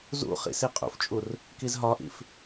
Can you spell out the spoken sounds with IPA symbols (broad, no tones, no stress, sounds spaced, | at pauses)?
z ṵ χ ḭ s i qʼ ṵ f t͡ʃʼ u r | k i z ɦ ɒ ʔ ḭ f